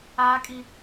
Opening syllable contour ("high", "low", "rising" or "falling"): high